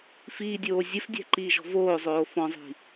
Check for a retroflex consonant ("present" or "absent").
absent